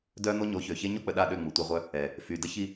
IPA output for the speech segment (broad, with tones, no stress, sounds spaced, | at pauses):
d œ˦ n̪ o˦ ɲ o˨˦ ç ø˨ ç e˦ ɲ o˦ k͡p ə˨ ɗ a˦˨ ɗ ø˦˨ ŋ͡m u˨ tʷ e˦ ʁʷ œ˦ | ɛ˨ | f y˨ d ə˦ ç i˦